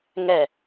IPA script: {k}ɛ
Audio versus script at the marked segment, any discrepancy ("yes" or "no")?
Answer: yes